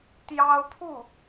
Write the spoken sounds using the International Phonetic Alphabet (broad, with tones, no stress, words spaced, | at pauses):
t̪jɑ˥ʊ̯ pʰu˥˩